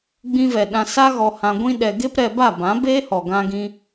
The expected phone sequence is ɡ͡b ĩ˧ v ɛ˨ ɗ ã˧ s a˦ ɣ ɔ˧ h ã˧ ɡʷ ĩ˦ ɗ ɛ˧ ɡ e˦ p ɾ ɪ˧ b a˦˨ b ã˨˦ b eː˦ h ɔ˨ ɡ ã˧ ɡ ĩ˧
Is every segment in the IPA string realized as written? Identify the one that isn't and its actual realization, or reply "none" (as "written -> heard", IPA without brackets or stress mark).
ɪ˧ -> ɛ˧